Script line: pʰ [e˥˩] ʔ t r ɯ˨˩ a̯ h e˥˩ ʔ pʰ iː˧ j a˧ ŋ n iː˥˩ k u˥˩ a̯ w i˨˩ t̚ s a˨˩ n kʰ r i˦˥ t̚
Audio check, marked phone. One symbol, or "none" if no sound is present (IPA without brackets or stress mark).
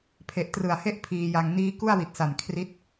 e˨˩